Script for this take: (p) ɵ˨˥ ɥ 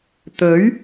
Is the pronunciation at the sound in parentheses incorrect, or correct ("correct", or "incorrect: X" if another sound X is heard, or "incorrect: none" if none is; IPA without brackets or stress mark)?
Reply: incorrect: t̪